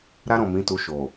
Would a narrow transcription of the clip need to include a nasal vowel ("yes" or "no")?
yes